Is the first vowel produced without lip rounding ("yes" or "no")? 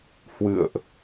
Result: yes